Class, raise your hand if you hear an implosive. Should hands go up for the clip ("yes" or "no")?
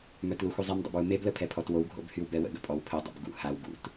no